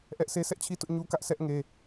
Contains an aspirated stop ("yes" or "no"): yes